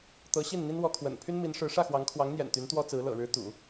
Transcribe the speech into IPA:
t̪ ɤ˧˥ ɕ i˥˩ n n̪ i˥ n w ɔ˧˥ kʰ w ə̰˨˩ n pʰ y˥ n m i˧˥ n ʂ ɻ̩˧˥ ʂ ä˥˩ x w ɑ˧˥ ŋ kʰ w ɑ˧˥ ŋ n̪ j ɛ̰˨˩ n t̪ y˧˥ n t̪ w ɔ˥ t͡s ɹ̩˧˥ l ɤ̰˨˩ ɻ ɻ̩˧˥ t̪ ṵ˨˩˦

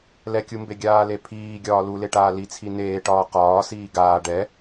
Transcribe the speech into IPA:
l ɛ kʲ u m b e ɡʲ aː l e pʰ iː ɡʲ ɒː l u l e ʈ aː l i t͡sʰ i n eː ʈ ɒː q ɒː s iː ɡ aː ɖ ɛ

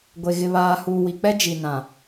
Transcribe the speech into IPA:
ɡʷ e˨ ɣ ɪ˨ β aː˨ h uː˨ w i˨ k͡p ɛ˦ d͡ʒ i˨ n ã˨

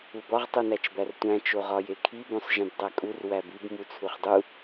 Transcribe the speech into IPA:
u b ɒ ʁ tˤ u n æ t͡ʃ b æ r tʷ æ̃ t͡ʃ o ʁ ɒ j e kʰ i b õ sˤ ʒ ẽ b dˤ æ kʼ u r w æ b i b m u t͡sʰ u χ dˤ u

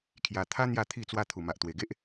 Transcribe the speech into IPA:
kʰ j a˧ t̪ʰ a˦ n̪ j a˥˧ t̪ʰ i˥˧ t͡s w a˦ t̪ʰ u˨˩ m a˨ ʔ t̪ w e˨˩ ɡ e˦ ʔ

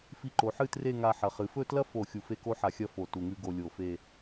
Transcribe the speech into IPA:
f i˧ ǃ o˩˧ ħ ɨ˥˧ t r e˥˧ ŋ a˧ ħ ɐ˩˧ χ ɨ˩˧ f ɵ˥˧ t l ɐ˥ f o˧˩ xʲ u˧˩ f e˥˧ k o˥ ħ a˧ xʲ ɐ˥ f o˧˩ t u˧˩ ŋ ʉ˥ ɡ o˧ lʲ o˧˩ f e˥˧

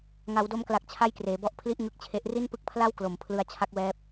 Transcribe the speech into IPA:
ŋ a˩˦ w d o˧ m k l a˨˩ k̚ t͡ɕʰ a˥˩ j k r eː˩˦ b ɔ˦˥ ʔ pʰ l i˥˩ ʔ ŋ ɯ˦˥ k̚ t͡ɕʰ e˦˥ ʔ r i˥˩ n p ɯ˦˥ k̚ pʰ l a˥˩ w k l o˩˦ m pʰ l ɯ˦˥ a̯ t͡ɕʰ a˦˥ k̚ w ɛː˦˥ p̚

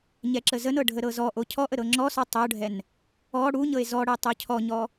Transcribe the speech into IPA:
ɲ ɛ ǁ ə z ə n ɤ ɖʱ ə ɾ ɤ z ɔ ʔ o cʰ ɔ ʔ ə ɾ ɤ ŋ͡ǁ ɔ s ɔ tˤ o ɖʱ ɛ n | ɔ ɽ u ɲ ɤ e̯ z ɔ ɽ ɛ tˤ o cʰ ɔ ɲ ɔ

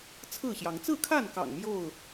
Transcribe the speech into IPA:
t͡sʰ ɹ̩˥˨ ɕ j ɑ˨˦ ŋ t͡s ɹ̩˥˨ kʰ a˥˨ n k ɑ̰˨˩ ŋ m j o˥˨ ʊ̯

